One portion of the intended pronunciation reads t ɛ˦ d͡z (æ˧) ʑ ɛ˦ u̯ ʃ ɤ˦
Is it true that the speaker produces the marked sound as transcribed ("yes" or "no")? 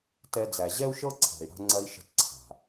yes